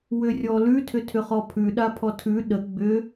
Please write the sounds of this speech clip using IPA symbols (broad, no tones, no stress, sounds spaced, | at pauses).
w ʏ rʲ ɔ l ʉ tʰ ʏ tʰ ʏ χ ɔ pʰ ʉ ɗ a pʰ ɔ tʰ ʉ ɗ ə ɡ͡b ʏ